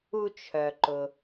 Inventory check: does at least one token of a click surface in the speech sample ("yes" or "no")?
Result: yes